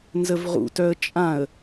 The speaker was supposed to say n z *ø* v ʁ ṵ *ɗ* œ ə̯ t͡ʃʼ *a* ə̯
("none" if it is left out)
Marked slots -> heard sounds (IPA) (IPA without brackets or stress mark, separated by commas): ə, t, ã